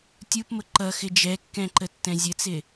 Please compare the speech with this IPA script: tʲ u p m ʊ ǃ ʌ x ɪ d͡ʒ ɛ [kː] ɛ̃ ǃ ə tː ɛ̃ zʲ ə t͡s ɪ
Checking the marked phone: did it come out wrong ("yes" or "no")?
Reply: no